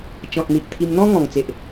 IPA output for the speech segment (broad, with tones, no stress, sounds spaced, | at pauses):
t͡ɕ ɔ̃˨ t̚ n̪ i˨ ʔ t̪ʰ i˧ m n̪ ɔ̃˦ ŋ ɔ̃˨˩ ŋ t͡s e˨ ʔ